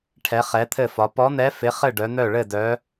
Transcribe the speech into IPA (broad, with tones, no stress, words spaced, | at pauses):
ʈʰɛ˧˥χɛ˧˥t̪ʰɘ˥˧fɒ˧˥ pɔ˧˥n̪ɛ˧˥ fɪ˧˥χɘ˥˧ ɖœ˧˥n̪œ˥˧ ɭɘ˥˧dœ˧˥